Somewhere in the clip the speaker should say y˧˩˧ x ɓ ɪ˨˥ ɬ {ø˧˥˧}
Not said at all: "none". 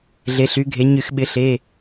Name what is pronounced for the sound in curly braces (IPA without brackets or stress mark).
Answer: e˧˥˧